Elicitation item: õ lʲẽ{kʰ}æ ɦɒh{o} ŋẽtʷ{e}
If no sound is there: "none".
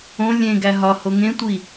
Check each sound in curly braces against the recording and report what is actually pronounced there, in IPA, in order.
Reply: ɡ, o, i

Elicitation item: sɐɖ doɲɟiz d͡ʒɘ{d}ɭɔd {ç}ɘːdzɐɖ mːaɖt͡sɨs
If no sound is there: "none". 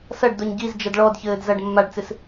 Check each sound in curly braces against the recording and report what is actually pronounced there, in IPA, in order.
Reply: d, ç

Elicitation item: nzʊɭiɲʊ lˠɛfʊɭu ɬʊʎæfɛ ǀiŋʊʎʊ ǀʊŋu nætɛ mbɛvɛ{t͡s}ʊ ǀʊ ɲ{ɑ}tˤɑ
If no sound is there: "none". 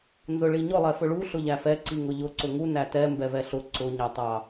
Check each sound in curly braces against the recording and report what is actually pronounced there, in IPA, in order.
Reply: ɬ, ɑ

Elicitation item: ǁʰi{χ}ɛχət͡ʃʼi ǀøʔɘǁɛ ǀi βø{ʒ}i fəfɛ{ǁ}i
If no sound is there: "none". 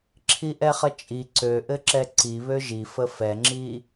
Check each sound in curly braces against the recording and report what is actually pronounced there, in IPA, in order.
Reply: ʔ, ʒ, ŋ͡ǁ

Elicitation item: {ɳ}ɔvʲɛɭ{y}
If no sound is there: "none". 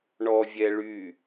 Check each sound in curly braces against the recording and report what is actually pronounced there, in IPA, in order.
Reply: ɳ, y

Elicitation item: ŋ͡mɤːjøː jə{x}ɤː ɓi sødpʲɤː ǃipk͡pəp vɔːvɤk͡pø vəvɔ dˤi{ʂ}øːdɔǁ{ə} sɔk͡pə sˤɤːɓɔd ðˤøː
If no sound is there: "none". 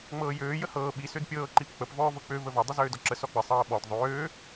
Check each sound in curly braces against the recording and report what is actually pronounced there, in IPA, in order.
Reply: h, z, ə

